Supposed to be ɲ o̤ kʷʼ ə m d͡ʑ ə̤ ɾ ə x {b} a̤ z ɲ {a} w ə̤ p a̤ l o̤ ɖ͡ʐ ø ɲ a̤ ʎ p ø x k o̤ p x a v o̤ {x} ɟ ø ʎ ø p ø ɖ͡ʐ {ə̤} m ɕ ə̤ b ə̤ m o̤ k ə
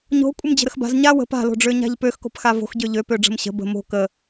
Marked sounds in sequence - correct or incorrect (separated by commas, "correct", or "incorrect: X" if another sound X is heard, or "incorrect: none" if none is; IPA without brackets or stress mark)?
correct, correct, correct, correct